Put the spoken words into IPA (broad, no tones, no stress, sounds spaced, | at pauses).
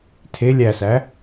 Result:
tʰ e lʲ æ s æ